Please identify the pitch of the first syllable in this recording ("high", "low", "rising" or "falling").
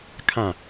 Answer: falling